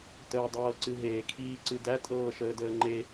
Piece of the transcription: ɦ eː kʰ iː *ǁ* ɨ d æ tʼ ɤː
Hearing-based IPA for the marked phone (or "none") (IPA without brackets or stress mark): ǀ